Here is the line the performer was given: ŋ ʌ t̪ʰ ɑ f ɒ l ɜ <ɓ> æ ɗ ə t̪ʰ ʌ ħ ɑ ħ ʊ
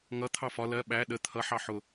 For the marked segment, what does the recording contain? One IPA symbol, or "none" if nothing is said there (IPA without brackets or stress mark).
ɓ